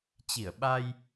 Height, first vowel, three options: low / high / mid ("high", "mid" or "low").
high